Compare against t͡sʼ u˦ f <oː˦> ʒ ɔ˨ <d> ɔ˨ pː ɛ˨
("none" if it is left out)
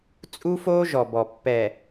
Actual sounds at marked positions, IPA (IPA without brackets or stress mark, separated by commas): oː˦, b